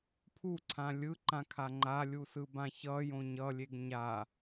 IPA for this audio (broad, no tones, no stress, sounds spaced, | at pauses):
pʰ u ǀʰ ã lʲ ɯ ǃ ã kʰ a ŋ͡ǃ a lʲ u s ɯ b ã ç ʌ j õ ɲ ʌ lʲ e ɡ ɲ a